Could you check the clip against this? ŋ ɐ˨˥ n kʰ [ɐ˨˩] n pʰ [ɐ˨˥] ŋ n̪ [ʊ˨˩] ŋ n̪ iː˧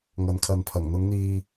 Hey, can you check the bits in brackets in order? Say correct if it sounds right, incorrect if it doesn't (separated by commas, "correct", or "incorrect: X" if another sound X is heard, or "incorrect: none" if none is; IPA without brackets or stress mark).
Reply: incorrect: ɐ˨, incorrect: ɐ˨˩, incorrect: ʊ˨˧